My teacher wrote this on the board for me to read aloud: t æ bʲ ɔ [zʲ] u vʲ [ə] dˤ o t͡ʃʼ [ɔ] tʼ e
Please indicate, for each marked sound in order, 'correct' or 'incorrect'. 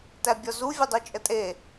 incorrect: z, correct, incorrect: ə

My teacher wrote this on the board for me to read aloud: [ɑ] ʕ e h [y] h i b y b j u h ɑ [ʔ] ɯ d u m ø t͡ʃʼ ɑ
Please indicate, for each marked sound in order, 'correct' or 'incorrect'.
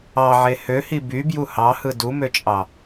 correct, incorrect: ø, incorrect: h

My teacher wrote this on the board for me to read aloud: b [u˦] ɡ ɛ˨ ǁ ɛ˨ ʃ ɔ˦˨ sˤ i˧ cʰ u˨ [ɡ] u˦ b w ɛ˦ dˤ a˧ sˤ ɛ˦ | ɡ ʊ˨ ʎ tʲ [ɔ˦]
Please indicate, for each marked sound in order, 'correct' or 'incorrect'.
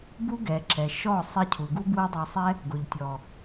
correct, correct, incorrect: ɔ˨

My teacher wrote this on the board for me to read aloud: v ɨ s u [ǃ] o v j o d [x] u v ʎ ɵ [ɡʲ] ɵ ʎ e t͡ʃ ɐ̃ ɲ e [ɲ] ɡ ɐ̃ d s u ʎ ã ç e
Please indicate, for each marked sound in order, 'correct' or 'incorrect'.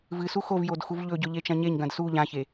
incorrect: x, correct, incorrect: ɟ, correct

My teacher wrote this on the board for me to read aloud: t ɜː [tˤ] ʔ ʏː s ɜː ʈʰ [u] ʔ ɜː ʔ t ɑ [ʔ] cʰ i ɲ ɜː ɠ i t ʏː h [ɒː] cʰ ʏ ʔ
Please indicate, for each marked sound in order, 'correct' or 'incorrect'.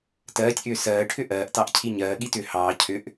incorrect: tʲ, incorrect: ʏ, correct, incorrect: ɑː

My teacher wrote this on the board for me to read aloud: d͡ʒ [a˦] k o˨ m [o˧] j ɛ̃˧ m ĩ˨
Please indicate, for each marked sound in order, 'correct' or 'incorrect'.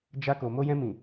incorrect: a˧, correct

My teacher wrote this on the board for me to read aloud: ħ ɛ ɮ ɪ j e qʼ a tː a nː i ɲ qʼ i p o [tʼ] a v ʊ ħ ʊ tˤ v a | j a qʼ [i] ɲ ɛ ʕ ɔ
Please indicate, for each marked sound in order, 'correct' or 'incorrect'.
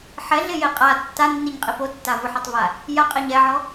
incorrect: tː, incorrect: ɪ

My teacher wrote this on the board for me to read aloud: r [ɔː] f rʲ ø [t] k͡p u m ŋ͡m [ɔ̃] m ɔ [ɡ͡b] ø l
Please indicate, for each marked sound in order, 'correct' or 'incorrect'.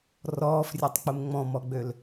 correct, incorrect: tˤ, correct, correct

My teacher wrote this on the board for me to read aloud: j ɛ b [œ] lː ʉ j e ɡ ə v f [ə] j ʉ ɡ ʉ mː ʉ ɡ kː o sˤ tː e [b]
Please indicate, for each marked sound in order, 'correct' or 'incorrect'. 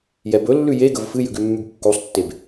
incorrect: ɵ, incorrect: ɨ, correct

